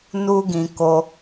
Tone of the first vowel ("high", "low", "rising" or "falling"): high